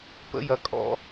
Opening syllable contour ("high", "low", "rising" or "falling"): high